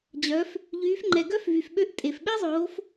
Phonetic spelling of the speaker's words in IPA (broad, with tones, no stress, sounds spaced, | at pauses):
d͡ʑ œ˩˧ f | ʎ yː˩˧ f ŋ͡ǃ ɛ˩ ɡ œ˥ f v y˩ f ɓ ø˧ ʔ tʼ e˩ f ɓ e˥ zˤ oː˩˧ f